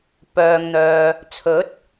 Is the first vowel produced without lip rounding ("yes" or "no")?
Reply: no